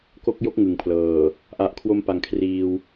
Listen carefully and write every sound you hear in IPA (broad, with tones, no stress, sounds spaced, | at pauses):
k o˦˥ k̚ j o˦˥ k̚ ŋ ɯ˨˩ ŋ pʰ l ɤː˨˩ | ʔ a˨˩ ʔ kʰ w o˧ m p a˩˦ ŋ kʰ r iː˧ w